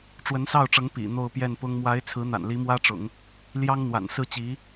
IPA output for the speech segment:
ʈ͡ʂwə˧˥nsɑ˥˩ʊ̯ʈ͡ʂɤ˧˥ŋ pḭ˨˩ n̪o˥˧ʊ̯pjɛ˥˩npʊ˥ŋ mwa˧˥ɪ̯t͡sʰɹ̩˧˥n̪a̰˨˩n li˧˥mwä˥ʈ͡ʂʊ̰˨˩˦ŋ | ljɑ˥ŋn̪wa̰˨˩nsɹ̩˥˩ t͡ɕi˧˥

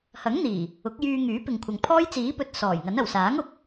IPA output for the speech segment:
hɐ˨˥ŋn̪iː˨˩ | ʊ˨˥k̚jyː˧ ŋyː˨˥ pɪ˨ŋkʷʰɐ˨ŋpʰɔː˥j t͡siː˨˥pɵ˨t̚ sɔː˨˩jŋɐ˨˥nɐ˨˩w saː˨˥ŋʊ˨˥k̚

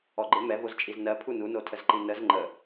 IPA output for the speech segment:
ɔɡ͡ǃɪ mɛvozt͡ʃʼiz nɜ pʰununotʰəz ǃinəz ŋ͡ǃə

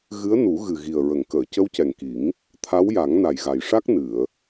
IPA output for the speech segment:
ɣɨ˧˥ə̯nu˨˩˦ ɣɨ˨˩ɣi˨˩ə̯ ɹə˨˩˨ŋkəː˨˩˨ cə˧˥wcɛ˨˩ŋki˨˩˦ŋ | t̪ʰa˧˥wja˨˩˦ŋ na˨˩jɣa˨˩jʂa˦˥k̚ nɨ˨˩˨ə̯

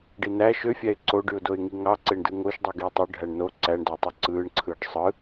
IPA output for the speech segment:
ɖinæ ʃøfʲæɪ̯ ǀoɖyʊ̯ doɪ̯ŋiŋɑ ǀeɳdɯŋoʃdˤɯ ɡiːtˤø ɖʱæɳno ǀæɳdɑtˤi ǀɯːɳǀʰɯːɖ sˤɯ

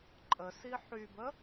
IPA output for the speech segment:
ǃʼəsi ħybə

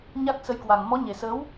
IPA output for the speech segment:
ɲa˦˥k̚sə˧jkwa˨˩ŋ mɔ˨˦ɲe˨˩səː˨˦w

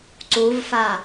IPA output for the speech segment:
ǀuvfa

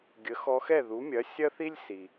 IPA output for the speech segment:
ɡʲə˩˥xɔ˧xɛ˥˩ ðu˩˥mʲɐ˩˥ sʲɐ˥θi˥lʲsi˩

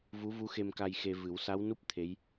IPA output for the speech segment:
vu˧˥vu˧˥xe˧mka˧j xe˧ vɨ˨˩˦w sa˧˥wnu˦˥p̚ t̪ʰe˧˥j

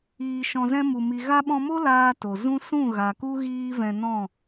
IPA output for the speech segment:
iː˧ʃɔ̃˧zɛ̃˦ mu˧ mi˨ɣa˧ɓɔ̃˧mo˦ laː˦to˨ zũ˦sũ˦˨ɣa˨ku˦ ɣiː˦vɛ̃˧nɔ̃˦˨

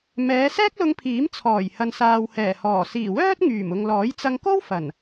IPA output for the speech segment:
mɛː˨˧sɛː˥k̚lʊ˧ŋpʰiː˨˥m t͡sʰɔː˨˩j hɐ˨nsaː˨whɛː˨˩hɔː˨˩ siː˨˩wœː˥t̚ ŋyː˨˩m ʊ˨ŋlɔː˨˥jt͡sɐ˧ŋko˥w fɐ˨˩n

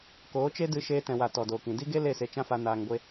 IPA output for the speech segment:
koː˨˦t͡ʃe˦dɨ˧ ʃeː˧tɛ̃˨wa˨ tɔ˨doː˨kĩ˨ di˦ɡe˦ le˦˨se˧t͡ʃã˦fa˧ naː˨ŋɡʷe˧

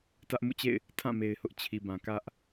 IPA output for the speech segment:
tä˦ʔ mṵ˦˨t͡ɕḛ˦˨ɪ̯ | tʰã˦˨ me˨ɪ̯hʊ˦ʔ t͡ɕʰi˨bã˨ kä˦ʔ

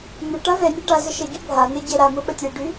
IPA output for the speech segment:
n̪ʊ ʈavɛnʲɛ ɖazə ʃəɟʉ bʱan̪ɛ ɟɛɾamʊ ɓətʲɛɖʉ

